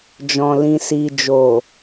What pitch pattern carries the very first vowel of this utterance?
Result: low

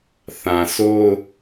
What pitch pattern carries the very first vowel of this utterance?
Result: low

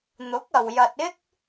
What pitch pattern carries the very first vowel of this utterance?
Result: rising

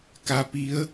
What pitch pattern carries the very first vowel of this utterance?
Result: rising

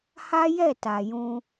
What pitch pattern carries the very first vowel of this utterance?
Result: high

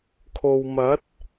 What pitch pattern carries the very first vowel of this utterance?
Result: low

